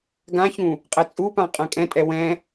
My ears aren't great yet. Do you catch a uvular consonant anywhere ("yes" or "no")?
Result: yes